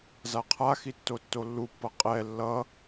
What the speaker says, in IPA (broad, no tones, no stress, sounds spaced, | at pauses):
z a qʰ a x i tː o tː o lː u pː ʌ qʼ ɛ lː ʌ